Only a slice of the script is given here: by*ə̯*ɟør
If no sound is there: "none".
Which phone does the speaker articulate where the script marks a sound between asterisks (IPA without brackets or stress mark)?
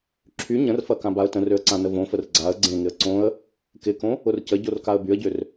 ə̯